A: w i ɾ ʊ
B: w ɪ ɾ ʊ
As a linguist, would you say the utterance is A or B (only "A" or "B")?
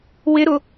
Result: B